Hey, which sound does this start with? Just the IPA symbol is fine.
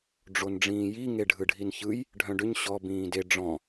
ɖ͡ʐ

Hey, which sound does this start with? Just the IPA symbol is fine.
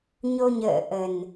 ɲ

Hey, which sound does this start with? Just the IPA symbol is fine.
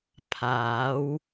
pʰ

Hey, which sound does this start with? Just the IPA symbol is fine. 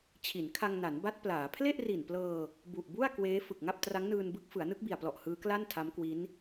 t͡ɕʰ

